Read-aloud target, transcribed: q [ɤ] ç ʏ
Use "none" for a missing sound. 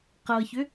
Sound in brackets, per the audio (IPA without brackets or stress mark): ɤ